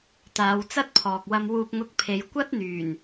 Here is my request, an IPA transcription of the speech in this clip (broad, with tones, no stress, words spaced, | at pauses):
t̪aː˨˧wt͡sɐ˥t̚pʰɔː˨k̚ wɐ˧mwuː˧p̚ŋʊ˧k̚pʰe˨˧j kʷɐ˥t̚n̪yː˨˩n